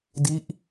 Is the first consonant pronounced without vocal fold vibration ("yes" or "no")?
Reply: no